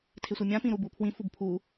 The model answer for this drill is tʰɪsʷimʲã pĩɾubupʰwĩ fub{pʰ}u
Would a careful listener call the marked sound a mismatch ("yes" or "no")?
no